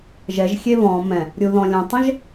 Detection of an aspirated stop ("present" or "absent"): absent